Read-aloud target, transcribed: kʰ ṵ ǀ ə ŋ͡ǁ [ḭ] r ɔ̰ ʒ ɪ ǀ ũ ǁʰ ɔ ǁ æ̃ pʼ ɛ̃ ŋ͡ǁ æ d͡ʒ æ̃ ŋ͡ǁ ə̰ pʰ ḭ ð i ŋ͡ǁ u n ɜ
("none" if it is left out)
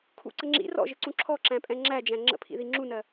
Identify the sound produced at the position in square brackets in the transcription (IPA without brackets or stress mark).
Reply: ḭ